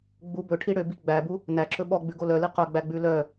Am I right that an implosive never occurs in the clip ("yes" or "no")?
no